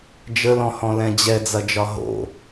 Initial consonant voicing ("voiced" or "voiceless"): voiced